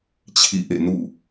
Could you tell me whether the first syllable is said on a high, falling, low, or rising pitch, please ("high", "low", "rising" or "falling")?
falling